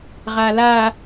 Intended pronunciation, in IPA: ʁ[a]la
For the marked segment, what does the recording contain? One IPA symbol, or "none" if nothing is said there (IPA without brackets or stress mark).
a